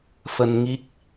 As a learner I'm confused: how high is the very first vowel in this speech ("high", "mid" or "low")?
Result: mid